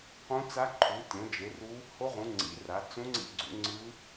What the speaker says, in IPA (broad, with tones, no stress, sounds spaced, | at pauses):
q ũ˦˥ t͡s a˦˥ ǃʰ u˨˦ tʲ õ˨˦ d͡ʒ e˨˦ r u˦˥ | h o˦˥ ʁ ũ˨˦ ŋ͡ǀ ḭ˨˦ r a˨˦ t͡s ũ˦˥ ŋ͡ǀ ḭ˦˥ ɡ͡ǀ ṵ˨˦ ŋ͡ǀ ɯ˦˥